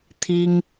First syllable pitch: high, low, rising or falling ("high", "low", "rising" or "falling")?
high